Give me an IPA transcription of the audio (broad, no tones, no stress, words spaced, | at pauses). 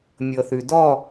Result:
mʲɤθʉdɔ